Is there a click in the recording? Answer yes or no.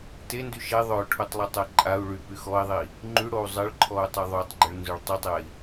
yes